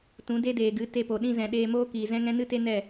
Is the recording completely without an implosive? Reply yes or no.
no